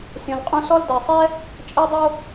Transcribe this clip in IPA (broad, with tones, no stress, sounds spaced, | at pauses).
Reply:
sʲ õ˩ l qʼ ũ˧ s ɔ˧ l d ɜ˩ sˤ ɛ˥ | t͡ʃʼ ɜ˧ dˤ o˧